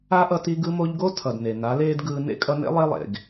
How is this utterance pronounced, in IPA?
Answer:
a˦ ʔ ʌ˧ t i˧ ɡ ɯ˧ m o˧ ʎ ɡ o˦ tʰ ʌ˨ d n e˨ n a˨˦ l eː˦ d ɡ ɯː˧ n ḛ˦ kʼ ʌ˧ n ḛ˦ lˠ e˦ lˠ ḛ˨ ɡ

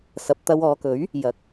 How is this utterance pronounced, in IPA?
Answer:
s ɐ˨ p̚ t̪ ɐ˧ w ɔː˨˧ k ɵ˨˥ ɥ | j ɐ˨ k̚

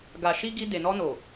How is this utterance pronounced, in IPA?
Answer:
ɡ a˨ ʃ i˧ ɡ i˧ d e˨ n ɔ˧ n o˨

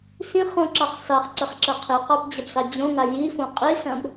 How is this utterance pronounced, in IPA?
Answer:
s ĩ χ õ ǁ ɑ χ s ɑ χ ǀ ə χ ǁ ɐ qʰ i q ɑ b d͡ʑ ɐ b s ɑ d͡ʑ õ ŋ a j i f õ qʼ i s ɐ̃ b

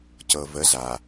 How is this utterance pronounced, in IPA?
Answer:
c ɤ˨ v ə˨˦ z a˨

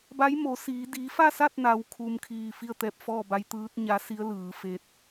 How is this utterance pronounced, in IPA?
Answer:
b a˧˥ j m o˩˧ s iː˩˧ d i˩˧ f a˥˨ s a˥˨ t̚ n a˩˧ w kʰ u˩ m kʰ iː˧˩ f i˥˨ ə̯ t̪ ɛː˧ p̚ f ɔː˥˨ b a˧˥ j t̪ ɯː˧˥ t̚ ɲ a˧˥ s i˧˥ ə̯ l ɯː˩˧ f e˧ t̚

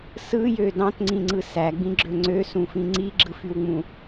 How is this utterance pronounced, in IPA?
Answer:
s ɯ j ø d ɑ̃ t ŋ͡ǀ ĩ ŋ͡ǀ ɯ s æ ɡ͡b ĩ ɡ͡ǁ ø ŋ͡ǀ ø s ũ f ĩ ŋ͡ǀ i ɡ͡ǁ ɯ f y w ŋ͡m ũ

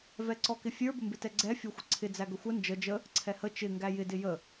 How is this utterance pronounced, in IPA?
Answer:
v ɛ ǀ ɔ k ɪ fʲ ə˞ b ə m b ɪ t ɛ ɡ͡ǀ ɛ fʲ ɔ xʷ ə ǀʰ ɪ d͡z æ ɡ ə xʷ ə n d͡ʒ ə d͡ʒ ə | ǀʰ ɛ h ə t͡ʃ ɪ ŋ ɡ æ j ɪ d ɪ j ə

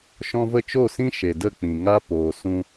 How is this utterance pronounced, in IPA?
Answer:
ʃ ɔ̃˧ v ə˦˨ t͡ʃ o˦˨ s ĩ˦ ʃ e˨ d ə˦˨ k͡p ĩ˨ ŋ a˦ p oː˨ s ũ˧

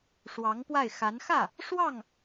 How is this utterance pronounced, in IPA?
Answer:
ʂ w ɑ˧˥ ŋ p w a˥˩ ɪ̯ x a˧˥ n x ä˥˩ | ʂ w ɑ˥˩ ŋ

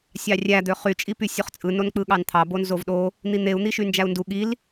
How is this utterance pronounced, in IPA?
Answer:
sʲ ɑ rʲ æ d̪ ø χ y t͡ʃʼ i p y sʲ u χ t͡sʼ ɯ n o n k͡p ɯ ɠ ɑ n t̪ʰ ɑ b o n z o v ɗ o | n̪ i n̪ e u̯ n̪ i ʃ y n d͡ʒ æ u̯ n d u ɠ i l

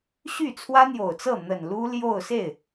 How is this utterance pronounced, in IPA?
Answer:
ɕ y˥˩ t͡sʰ w ä˥ n̪ j o˨˩ ʊ̯ t͡s ɤ˥˩ n̪ ə˨˩ n l u˥ l j o˥˧ ʊ̯ s e˥˩ ɪ̯

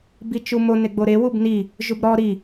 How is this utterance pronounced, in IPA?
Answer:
b i t͡ʃ u m o n e ɡ͡b o ɾ e w u b n i | ʒ u b ɾ ɔ ɾ i

